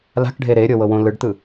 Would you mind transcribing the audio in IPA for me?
l a̤ k ɖʱ e ɾ e ɾʲ ɤ w ɤ w õ l ɯ ɖ t̪ ɯ

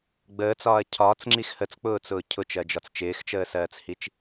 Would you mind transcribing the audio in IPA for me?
ɡ͡b əː t͡s ɒː ɐ̯ cʰ ɒː t͡s ŋ͡ǁ i x h ə t͡s k͡p ʊː t͡s ʊː cʰ ʊ t͡ʃ ɜ d͡ʒ ɒ t͡s t͡ʃ ɪː x t͡ʃ əː s ɜː t͡s h i t͡ʃ

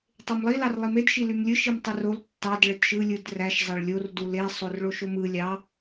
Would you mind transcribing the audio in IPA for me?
tˤ e m lˠ i l ɑ r lˠ i m e d ʃ i l y m lʲ ɯ ʃ i m tˤ ɯ r o l tː ɑ d ɭ e t ʃ ɯ lʲ ɯ d r æ ʃ zˤ ɑ ɭ lʲ o r d u l e sˤ o r ɭ o ʃ o m ɯ lʲ ɑ

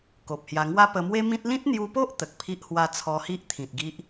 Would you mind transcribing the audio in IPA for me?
k o˨ p̚ h j a˧ ŋ w a˦ p ə˧ m w e˦ m ĩ˦ t̚ l ĩ˦ t̚ n̪ j u˧ p o˦ ʔ t̪ ə˨ k̚ pʰ i˦ ʔ h w a˥˧ t͡sʰ ɔ˧ h i˦ ʔ t̪ʰ ĩ˨ t̚ ɡ i˦ ʔ

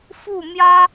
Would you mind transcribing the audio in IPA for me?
f u˥˩ m j ä˥

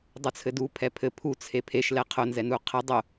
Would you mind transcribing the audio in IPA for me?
dˤ u t͡sʰ ɘ d u pʰ ɛ pʰ ɘ pʰ u t͡sʰ e pʰ e ʃ l ɛ qʰ ʊ n z ɛ n u qʰ ɘ dˤ ʊ

